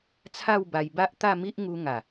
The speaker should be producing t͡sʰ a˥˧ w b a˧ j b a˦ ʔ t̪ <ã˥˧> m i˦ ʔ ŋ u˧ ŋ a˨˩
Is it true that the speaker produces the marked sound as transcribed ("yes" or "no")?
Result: no